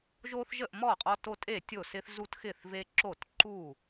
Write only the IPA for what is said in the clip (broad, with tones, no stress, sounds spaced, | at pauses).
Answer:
ʒ o˦ θ ʒ ə˥˩ ʔ m ɔ˥˩ qʼ ɔ˦ t o˦ tʼ e˥˩ tʲ o˥˩ s ɪ˦ θ z u˦ t x ɪ˥˩ θ v e˦ ǁ o˥˩ t ǃ u˥˩